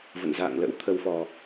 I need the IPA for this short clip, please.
v ə̰˧˨ n z a̰ː˧˨ ŋ l ə̰˧˥ w t̪ʰ ə˧ w f ɔ˨˩

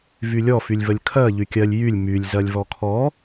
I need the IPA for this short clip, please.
v y lʲ ɔ f y lʲ v ə lʲ kʰ ɜ ʎ y kʲ ɜ lʲ j y lʲ m y lʲ z ɜ lʲ v ɔ kʰ ɔ

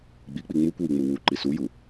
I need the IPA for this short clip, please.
ɡ͡b i k͡p i ŋ͡m u kʷ w i ŋ͡m u w u ǃ i s u j u

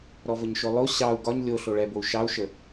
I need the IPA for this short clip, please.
ɾ ɔ v ə ɲ ʃ o lˠ o ɕ ɑ u̯ ɡ ɒ ɲ lʲ o ɬ o ɭ ɛ b o u̯ ʃ ɑ u̯ ʃ ə

